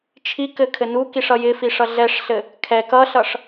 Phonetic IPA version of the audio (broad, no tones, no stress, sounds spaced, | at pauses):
t͡ʃʰ i k ɘ kʰ ɘ n u k i ʂ ʌ j ɪ f i ʂ ʌ ɮ ɛ ʂ ɬ ɘ | kʰ ɛ k ʌ ɬ ʌ ʂ